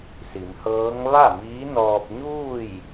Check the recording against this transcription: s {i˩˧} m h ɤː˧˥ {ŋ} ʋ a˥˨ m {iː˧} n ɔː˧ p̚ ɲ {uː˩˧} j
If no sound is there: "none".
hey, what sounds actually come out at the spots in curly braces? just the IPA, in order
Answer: i˩˧, ŋ, iː˧˥, uː˥˨

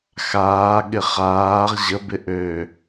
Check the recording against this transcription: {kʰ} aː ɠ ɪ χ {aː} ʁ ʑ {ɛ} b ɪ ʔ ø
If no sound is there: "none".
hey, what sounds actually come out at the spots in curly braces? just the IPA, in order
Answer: x, aː, ə

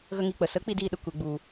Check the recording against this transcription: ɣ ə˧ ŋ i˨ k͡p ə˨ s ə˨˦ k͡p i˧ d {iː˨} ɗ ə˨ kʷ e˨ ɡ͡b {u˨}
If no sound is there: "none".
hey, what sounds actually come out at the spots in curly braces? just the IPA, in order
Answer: iː˧, u˨

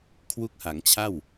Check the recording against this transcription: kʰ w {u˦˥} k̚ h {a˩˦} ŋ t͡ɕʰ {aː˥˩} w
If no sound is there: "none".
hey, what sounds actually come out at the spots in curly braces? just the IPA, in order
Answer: u˦˥, a˩˦, a˥˩

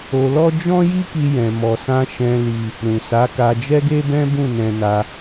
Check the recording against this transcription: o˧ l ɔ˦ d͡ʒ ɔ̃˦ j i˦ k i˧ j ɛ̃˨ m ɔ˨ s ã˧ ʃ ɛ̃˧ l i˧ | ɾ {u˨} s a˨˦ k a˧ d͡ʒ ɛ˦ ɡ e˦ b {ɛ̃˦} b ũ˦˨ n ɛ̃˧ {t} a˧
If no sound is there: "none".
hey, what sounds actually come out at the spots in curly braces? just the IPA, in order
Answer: ũ˨, ɛ̃˦, n

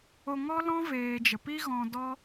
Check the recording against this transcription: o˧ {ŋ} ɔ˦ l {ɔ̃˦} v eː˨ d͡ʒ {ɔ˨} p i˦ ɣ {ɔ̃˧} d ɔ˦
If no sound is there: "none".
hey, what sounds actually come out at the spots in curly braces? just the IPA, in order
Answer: ŋ, ɔ̃˦, ə˨, ɔ̃˧

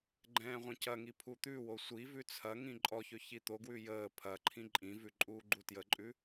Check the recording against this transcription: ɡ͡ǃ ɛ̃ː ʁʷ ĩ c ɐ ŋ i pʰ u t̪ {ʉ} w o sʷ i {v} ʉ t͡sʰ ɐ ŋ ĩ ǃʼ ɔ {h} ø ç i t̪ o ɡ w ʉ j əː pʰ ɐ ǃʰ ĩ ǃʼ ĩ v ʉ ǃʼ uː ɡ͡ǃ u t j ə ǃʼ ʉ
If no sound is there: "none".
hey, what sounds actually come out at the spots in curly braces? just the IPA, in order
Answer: ʉ, v, ç

